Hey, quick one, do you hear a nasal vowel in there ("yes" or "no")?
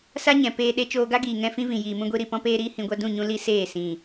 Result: yes